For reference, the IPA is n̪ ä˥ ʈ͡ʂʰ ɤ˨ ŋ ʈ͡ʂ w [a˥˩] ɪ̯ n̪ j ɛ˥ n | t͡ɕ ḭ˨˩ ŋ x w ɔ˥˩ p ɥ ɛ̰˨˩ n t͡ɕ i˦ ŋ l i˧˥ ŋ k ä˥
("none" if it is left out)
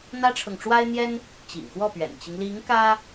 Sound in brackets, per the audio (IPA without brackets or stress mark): a˥